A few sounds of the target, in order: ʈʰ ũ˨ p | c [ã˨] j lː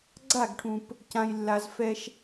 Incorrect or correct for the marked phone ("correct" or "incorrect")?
correct